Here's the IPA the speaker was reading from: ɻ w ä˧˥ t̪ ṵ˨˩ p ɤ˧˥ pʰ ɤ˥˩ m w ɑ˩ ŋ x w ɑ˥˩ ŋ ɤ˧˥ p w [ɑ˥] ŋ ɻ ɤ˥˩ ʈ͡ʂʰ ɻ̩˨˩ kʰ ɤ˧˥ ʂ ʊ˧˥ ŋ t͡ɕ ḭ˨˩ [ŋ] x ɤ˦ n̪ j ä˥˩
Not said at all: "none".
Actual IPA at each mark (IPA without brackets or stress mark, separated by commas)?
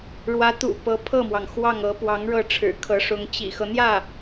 ɑ˧˥, none